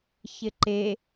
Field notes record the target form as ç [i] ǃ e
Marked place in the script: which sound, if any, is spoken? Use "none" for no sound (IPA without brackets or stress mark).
ɪ